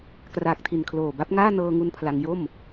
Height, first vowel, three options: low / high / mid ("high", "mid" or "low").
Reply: low